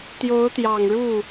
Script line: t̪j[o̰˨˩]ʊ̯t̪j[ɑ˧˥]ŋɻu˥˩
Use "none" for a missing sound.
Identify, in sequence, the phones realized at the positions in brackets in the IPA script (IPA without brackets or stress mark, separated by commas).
o˧˥, ɑ˨˩